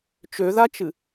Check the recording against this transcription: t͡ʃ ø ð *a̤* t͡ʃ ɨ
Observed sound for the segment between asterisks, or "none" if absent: a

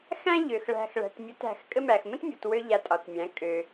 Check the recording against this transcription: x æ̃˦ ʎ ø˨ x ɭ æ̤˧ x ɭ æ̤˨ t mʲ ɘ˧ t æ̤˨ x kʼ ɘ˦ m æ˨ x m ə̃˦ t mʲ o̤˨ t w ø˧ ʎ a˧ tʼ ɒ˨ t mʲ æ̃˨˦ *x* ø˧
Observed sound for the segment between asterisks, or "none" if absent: kʼ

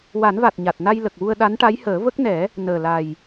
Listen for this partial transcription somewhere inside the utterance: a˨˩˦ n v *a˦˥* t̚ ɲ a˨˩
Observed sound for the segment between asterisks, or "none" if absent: a˨˩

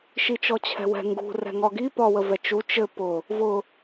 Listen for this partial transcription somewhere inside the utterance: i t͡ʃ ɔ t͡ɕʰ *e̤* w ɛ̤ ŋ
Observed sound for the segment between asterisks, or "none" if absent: ɛ̤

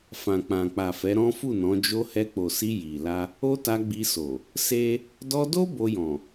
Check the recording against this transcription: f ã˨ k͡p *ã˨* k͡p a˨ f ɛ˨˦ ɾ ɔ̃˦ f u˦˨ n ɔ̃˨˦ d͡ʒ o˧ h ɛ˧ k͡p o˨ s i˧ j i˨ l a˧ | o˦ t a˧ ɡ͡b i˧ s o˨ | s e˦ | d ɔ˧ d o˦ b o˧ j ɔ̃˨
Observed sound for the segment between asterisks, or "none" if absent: ã˨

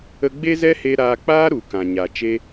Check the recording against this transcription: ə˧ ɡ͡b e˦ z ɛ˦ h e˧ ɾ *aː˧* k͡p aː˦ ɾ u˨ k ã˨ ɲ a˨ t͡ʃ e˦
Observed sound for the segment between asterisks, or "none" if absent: aː˧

